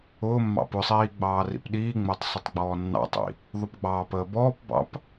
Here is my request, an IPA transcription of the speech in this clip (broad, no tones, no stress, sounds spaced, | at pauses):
ʊː mː ɑ̰ p ʊ sˤ iː ɡ͡b ɑː r ḭ p ɗ iː ŋ͡m əː tˤ sˤ ʊ tˤ ɡ͡b ɔː nː ɑ̰ tˤ ḭ | ðˤ ʊ p ɡ͡b ɑː p əː b ɔː p b ɑ̰ p